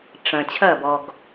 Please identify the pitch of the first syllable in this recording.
low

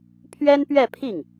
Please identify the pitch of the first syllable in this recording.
high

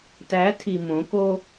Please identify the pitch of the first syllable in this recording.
rising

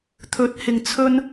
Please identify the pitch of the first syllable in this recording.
rising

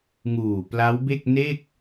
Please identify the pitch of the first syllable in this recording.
low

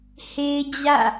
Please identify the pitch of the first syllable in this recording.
high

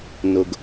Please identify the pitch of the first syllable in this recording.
low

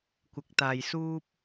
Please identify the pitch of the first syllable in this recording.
rising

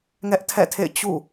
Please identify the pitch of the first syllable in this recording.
high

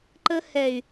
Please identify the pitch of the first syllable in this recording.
high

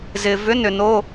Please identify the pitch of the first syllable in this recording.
low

